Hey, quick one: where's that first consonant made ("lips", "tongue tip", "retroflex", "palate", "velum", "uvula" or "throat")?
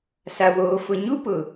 tongue tip